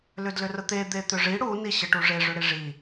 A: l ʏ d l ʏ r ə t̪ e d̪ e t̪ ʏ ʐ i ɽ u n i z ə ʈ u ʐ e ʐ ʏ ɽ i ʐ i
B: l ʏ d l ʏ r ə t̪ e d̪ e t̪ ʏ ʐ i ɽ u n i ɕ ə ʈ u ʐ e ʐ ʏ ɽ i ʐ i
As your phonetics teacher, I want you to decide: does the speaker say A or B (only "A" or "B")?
B